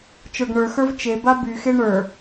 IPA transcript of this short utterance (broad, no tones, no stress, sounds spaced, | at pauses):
t͡ʃ ə˞ ɡ ɳ ə˞ x ə˞ v t͡ʃ e b a b y x e ɳ ə˞